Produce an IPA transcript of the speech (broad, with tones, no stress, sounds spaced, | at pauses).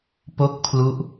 p o˥˩ k̚ pʰ l u˦˥ ʔ